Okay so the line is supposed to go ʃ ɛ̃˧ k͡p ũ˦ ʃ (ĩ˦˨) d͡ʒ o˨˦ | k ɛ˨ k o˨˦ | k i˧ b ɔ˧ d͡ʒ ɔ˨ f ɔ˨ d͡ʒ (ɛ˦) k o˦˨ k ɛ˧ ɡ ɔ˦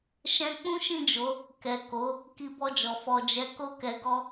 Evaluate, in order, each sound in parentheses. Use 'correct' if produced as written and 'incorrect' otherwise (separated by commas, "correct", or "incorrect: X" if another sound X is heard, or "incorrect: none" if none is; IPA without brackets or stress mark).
correct, incorrect: ɛ˨˦